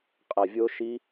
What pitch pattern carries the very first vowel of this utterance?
low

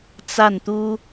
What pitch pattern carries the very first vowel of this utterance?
falling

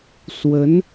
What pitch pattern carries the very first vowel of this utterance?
rising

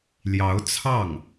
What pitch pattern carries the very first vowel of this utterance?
rising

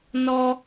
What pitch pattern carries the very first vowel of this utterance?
high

